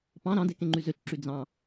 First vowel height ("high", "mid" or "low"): low